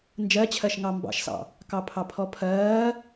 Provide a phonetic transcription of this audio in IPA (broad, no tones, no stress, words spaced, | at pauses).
nd͡ʒɜt͡ɕʰɜʃ ŋɑmbɑ̰ʃsɑ̰ | kɑpʰɑpʰɔpʰɜː